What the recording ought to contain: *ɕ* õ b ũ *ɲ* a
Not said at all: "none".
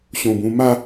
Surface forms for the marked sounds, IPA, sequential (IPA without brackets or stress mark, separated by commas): ɕ, m